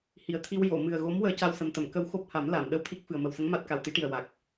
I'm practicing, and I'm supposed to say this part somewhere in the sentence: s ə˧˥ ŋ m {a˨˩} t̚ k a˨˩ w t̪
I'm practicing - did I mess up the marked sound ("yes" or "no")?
yes